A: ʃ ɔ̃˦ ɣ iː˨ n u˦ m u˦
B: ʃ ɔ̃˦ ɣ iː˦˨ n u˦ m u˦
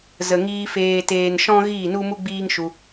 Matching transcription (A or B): B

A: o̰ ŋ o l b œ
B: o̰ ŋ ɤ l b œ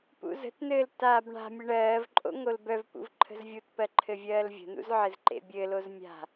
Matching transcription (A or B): A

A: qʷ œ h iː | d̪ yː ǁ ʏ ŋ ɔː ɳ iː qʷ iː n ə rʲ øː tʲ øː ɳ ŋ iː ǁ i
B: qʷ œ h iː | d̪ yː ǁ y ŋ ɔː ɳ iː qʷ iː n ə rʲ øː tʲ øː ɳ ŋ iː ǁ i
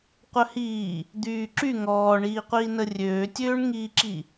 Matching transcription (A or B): B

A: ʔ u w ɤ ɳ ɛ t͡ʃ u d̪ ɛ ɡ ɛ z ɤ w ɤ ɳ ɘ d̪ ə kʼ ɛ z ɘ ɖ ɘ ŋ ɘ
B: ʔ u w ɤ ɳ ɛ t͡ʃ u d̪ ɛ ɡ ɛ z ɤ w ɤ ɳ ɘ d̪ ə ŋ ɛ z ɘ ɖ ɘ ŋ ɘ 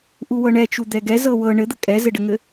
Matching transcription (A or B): A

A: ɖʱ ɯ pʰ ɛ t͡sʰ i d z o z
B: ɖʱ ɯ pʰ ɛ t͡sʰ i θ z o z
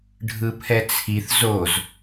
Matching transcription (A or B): B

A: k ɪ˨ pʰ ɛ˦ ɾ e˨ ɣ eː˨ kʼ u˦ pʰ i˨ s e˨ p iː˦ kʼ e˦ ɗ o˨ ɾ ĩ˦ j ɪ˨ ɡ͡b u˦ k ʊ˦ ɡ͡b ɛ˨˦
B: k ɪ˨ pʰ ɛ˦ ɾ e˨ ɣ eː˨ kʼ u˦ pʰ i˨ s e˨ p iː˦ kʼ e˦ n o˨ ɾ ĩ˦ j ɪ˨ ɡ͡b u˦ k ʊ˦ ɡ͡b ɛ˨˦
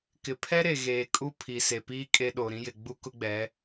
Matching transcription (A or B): A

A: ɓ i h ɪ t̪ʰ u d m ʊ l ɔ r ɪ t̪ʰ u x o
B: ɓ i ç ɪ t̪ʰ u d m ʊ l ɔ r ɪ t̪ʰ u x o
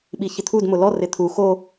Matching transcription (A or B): B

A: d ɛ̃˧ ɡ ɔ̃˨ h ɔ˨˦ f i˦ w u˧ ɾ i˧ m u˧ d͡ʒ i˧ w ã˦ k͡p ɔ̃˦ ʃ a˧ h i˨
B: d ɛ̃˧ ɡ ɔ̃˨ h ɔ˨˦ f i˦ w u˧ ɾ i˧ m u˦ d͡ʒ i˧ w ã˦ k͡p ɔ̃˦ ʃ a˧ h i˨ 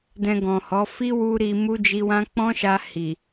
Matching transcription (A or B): B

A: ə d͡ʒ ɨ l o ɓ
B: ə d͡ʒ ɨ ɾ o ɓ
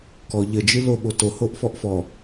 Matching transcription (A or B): A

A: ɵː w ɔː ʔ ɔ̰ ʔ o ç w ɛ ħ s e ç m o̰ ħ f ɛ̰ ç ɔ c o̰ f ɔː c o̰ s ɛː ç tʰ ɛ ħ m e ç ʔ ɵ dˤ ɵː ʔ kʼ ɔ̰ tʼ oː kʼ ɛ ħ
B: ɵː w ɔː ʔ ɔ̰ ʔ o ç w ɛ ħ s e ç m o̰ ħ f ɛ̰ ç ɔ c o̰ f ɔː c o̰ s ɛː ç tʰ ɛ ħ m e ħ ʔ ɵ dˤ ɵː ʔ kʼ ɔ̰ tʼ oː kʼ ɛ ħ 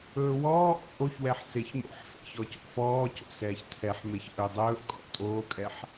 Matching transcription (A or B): A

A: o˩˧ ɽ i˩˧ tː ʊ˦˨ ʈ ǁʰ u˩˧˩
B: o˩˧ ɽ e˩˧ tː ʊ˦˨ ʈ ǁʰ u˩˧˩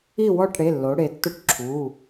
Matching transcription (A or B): B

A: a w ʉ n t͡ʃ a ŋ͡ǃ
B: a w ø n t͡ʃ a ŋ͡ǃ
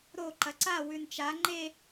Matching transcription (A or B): A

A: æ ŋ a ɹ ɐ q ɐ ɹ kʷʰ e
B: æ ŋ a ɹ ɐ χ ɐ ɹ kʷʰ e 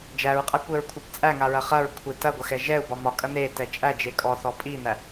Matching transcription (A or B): B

